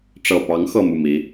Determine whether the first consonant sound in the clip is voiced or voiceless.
voiceless